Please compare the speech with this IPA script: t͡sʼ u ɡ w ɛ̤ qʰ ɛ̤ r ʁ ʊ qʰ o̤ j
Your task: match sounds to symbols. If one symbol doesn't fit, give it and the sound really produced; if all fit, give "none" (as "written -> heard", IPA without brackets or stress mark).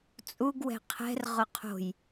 none